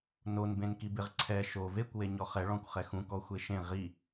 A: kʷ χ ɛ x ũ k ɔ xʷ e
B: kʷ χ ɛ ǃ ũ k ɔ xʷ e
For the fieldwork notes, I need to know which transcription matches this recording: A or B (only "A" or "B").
A